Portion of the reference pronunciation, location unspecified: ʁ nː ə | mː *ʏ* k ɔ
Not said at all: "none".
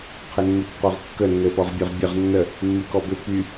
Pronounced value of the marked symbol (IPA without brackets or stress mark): y